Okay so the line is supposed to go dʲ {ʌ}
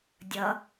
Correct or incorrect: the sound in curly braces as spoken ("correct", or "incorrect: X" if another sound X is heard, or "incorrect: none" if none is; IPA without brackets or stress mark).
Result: correct